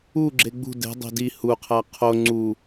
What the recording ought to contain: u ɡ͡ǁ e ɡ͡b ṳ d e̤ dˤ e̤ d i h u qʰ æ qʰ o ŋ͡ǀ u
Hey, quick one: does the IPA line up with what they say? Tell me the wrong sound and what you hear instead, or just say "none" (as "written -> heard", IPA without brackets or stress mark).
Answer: none